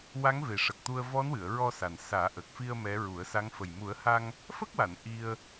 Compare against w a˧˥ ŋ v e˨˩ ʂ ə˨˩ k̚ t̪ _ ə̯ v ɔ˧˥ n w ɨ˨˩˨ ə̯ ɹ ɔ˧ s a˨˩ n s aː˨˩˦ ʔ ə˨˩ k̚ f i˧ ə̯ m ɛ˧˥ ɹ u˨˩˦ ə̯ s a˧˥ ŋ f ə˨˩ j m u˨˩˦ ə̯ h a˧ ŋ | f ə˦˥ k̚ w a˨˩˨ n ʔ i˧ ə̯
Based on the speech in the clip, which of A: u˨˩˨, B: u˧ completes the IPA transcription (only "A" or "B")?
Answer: B